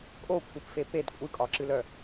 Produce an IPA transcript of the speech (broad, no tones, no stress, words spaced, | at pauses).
kʼokʷʰɨpfe ped kʷʼɨkʼɒǁɨlœ